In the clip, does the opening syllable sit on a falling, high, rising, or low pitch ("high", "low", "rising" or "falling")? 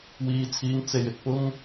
high